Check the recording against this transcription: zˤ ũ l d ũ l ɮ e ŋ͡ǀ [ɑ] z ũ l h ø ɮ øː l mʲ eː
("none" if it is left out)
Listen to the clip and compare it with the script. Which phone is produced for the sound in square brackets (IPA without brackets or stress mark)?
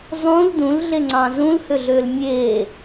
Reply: ɑ̃